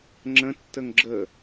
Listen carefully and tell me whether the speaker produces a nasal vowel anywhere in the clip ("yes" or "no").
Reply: yes